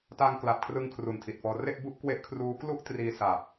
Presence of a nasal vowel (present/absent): absent